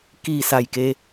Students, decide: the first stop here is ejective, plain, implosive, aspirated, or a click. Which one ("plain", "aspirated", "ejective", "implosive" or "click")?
plain